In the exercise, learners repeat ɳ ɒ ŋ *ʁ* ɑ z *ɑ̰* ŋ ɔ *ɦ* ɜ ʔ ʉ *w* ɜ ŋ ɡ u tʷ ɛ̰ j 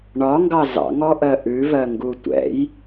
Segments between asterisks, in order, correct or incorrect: incorrect: ɡ, correct, incorrect: ʔ, incorrect: v

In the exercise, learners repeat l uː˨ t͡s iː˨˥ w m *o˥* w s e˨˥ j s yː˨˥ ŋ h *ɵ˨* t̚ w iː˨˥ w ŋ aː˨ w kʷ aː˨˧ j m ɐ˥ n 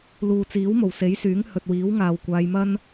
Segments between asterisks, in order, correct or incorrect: incorrect: o˨˩, correct

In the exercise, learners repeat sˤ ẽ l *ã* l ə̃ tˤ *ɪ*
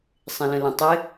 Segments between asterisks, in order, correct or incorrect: incorrect: ə̃, correct

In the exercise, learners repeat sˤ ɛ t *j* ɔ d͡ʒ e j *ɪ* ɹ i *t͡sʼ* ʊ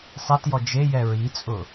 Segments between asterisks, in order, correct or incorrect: correct, incorrect: ɛ, correct

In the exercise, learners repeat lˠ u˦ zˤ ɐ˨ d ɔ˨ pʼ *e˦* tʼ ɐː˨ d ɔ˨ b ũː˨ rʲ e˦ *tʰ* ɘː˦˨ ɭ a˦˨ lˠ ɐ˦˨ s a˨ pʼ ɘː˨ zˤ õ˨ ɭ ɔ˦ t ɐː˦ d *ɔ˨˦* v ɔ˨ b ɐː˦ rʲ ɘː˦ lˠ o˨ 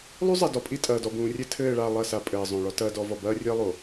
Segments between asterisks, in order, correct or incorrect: incorrect: i˦, correct, correct

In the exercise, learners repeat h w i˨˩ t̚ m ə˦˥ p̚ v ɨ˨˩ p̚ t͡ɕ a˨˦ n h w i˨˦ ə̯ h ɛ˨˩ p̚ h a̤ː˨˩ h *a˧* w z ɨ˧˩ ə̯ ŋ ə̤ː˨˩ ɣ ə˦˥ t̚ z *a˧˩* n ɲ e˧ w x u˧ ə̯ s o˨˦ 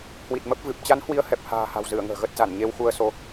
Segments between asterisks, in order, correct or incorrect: incorrect: a̤˨˩, correct

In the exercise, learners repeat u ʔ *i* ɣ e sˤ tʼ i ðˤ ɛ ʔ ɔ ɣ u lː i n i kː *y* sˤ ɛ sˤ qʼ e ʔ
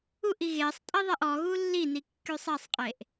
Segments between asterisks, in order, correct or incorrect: correct, correct

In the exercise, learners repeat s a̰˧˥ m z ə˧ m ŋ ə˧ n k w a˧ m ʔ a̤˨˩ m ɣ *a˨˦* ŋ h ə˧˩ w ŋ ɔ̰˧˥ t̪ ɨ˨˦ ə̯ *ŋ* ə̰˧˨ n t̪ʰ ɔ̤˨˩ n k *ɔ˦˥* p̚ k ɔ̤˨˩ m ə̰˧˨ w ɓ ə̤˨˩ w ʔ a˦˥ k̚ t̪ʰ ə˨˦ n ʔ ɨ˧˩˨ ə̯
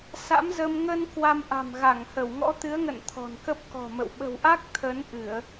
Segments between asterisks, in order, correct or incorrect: incorrect: a˧˩, correct, incorrect: ə˦˥

